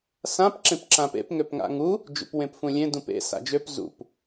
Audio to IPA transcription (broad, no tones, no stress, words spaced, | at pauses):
sãp ǁẽpǁãpḛp ŋøpŋa̰ŋu | d͡ʒṵpwẽpfũlʲẽ dũpḛ sa̰d͡ʒøp zṵp